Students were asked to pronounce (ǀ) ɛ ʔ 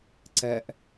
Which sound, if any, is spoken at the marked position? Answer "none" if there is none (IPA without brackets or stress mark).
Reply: ǀ